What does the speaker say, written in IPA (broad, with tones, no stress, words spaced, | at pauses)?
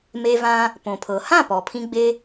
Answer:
me˧vã˧ | põ˩pʰɤ˩ hã˥˩pɔ˩pʰĩ˧ɡ͡be˧